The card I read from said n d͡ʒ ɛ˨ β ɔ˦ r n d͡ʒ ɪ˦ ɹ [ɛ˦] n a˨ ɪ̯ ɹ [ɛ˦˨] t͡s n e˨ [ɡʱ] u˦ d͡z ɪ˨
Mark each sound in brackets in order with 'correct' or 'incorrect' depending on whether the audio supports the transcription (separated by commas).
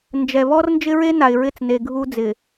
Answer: incorrect, incorrect, correct